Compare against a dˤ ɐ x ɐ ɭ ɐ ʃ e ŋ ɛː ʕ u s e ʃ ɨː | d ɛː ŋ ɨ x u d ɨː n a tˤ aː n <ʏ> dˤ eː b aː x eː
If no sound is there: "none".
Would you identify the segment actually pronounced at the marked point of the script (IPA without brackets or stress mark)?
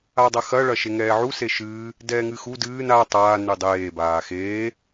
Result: ɨ